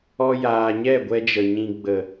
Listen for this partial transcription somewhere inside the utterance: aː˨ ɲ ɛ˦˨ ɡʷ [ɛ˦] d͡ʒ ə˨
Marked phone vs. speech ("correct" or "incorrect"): correct